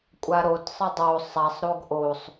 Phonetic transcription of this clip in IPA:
kʷʼ a ɾ o t sˤ ɘ dˤ o sˤ a sˤ ɾ o ɡ ʔ o sˤ

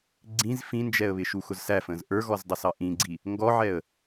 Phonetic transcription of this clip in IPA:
ɡ͡ǀ ĩ z f ĩ n d͡ʒ ɛ ə̯ β ɪ ʃ u x ʊ z s æ f ə̃ː z ʔ ə˞ ɣ ɔ z dˤ ə s ɑ ʔ ĩ ɡ͡ǀ i | ŋ ɡ ɔ ʕ ɛ ə̯

